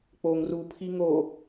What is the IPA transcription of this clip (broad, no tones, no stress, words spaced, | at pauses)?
k͡poŋ rupʰi ŋo